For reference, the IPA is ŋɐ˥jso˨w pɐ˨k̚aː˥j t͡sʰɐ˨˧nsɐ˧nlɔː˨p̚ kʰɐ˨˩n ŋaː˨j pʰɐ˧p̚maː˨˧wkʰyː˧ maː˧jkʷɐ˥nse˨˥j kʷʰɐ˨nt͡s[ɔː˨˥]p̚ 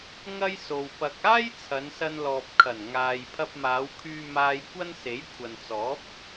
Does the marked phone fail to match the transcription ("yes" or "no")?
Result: no